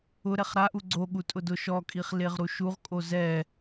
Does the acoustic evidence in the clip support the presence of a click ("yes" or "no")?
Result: yes